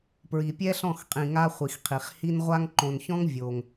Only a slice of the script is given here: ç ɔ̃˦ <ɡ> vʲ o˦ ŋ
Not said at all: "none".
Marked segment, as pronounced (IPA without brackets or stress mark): ŋ